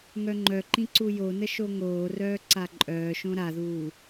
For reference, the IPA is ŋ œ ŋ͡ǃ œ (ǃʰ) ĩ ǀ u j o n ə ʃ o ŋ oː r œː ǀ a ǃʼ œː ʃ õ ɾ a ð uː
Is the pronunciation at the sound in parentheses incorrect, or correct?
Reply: incorrect